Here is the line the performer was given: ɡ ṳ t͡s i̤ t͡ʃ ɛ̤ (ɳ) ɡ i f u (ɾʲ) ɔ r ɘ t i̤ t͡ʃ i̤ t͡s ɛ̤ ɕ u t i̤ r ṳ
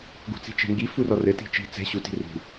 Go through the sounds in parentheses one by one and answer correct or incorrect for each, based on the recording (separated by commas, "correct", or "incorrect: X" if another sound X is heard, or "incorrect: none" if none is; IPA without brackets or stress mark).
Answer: incorrect: ŋ, incorrect: r